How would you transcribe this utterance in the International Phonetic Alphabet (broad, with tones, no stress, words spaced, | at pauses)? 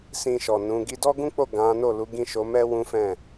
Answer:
sĩ˧ʃɔ˨ nũ˨˦ ɡi˧dɔ˦ɡũ˦k͡po˦˨ ɡã˨˦no˦˨lu˨˦ ɡĩ˦˨ʃo˨˦mɛ˦ wũ˦fɛ̃˦˨